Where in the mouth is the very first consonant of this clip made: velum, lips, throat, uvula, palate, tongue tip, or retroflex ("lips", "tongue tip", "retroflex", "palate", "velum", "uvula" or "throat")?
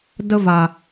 tongue tip